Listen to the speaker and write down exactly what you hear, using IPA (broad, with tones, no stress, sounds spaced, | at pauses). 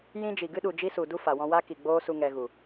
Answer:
j ĩ˦ d͡ʒ i˨ ɡ ɨ˦ ɗ u˨ d͡ʒ i˦ s u˨ d u˦ f a˨ w ɔ̃˧ w a˦ k i˨ ɡ͡b oː˦ s u˧ ŋ ɛ˧ ɣ u˨